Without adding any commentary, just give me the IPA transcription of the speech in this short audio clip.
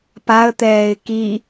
paə̯t̪ɛːɪ̯ ki

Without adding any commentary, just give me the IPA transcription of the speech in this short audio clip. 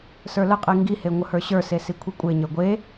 sə˞ləqʼi ŋɡihe ŋʷəhə˞ɕə˞se sikʷʰikʷʼeɲə˞ ɡʷe

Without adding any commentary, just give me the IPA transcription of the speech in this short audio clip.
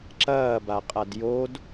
ǁɐːbaqʼad jod

